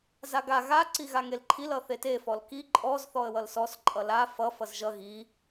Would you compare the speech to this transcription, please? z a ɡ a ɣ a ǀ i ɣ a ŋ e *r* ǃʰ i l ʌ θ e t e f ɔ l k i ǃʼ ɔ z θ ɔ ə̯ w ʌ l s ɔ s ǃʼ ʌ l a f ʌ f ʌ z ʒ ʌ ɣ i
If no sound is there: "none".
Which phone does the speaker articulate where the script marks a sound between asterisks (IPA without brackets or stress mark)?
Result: l